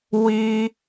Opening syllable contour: high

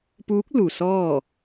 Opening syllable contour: rising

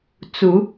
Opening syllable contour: rising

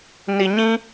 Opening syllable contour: low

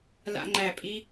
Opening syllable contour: high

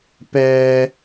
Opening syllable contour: high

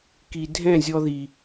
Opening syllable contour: low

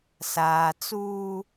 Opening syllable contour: low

